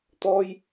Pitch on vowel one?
high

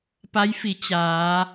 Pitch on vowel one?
rising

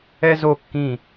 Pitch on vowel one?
high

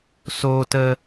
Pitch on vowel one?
high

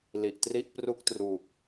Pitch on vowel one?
low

